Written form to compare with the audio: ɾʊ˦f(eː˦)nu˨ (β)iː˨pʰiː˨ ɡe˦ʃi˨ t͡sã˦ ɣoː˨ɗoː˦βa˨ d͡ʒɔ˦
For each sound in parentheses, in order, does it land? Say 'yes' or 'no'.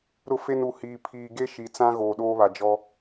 no, no

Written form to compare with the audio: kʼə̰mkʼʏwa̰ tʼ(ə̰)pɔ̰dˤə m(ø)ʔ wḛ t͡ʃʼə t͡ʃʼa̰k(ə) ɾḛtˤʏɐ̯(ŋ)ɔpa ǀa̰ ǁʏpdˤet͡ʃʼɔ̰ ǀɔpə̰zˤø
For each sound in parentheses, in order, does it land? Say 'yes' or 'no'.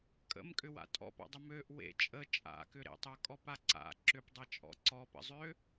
no, yes, no, no

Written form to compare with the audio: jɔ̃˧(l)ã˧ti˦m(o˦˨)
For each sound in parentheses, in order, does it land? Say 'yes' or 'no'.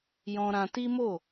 no, yes

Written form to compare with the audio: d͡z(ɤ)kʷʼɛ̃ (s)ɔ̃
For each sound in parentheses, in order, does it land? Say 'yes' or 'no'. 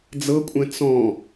yes, no

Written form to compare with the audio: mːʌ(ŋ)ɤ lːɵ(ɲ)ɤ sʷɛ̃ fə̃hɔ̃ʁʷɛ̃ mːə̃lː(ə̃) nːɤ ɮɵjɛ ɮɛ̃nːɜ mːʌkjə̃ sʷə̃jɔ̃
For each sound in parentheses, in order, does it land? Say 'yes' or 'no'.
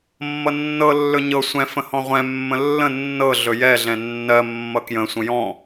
no, yes, yes

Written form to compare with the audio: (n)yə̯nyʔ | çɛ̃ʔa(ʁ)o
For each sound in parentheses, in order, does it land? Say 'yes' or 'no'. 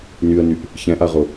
yes, yes

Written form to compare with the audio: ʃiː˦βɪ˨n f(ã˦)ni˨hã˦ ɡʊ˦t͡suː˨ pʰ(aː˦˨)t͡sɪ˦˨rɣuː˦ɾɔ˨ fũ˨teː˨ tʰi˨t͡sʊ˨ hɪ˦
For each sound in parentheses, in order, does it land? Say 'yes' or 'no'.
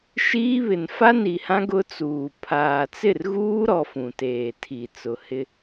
no, no

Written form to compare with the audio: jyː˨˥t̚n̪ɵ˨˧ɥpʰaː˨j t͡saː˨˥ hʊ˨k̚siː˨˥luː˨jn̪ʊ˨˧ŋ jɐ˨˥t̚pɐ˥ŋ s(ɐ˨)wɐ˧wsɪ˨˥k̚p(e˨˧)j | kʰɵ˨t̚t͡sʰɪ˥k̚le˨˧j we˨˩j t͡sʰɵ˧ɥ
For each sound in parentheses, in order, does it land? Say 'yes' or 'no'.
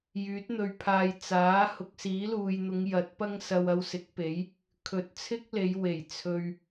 no, no

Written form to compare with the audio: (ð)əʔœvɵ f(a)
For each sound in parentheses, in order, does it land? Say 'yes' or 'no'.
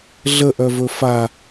no, yes

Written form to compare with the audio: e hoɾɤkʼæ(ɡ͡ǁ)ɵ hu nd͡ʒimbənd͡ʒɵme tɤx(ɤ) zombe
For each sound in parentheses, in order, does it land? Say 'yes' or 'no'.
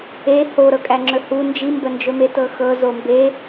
no, yes

